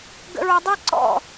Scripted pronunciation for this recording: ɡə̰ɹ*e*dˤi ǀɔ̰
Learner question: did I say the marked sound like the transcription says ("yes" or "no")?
no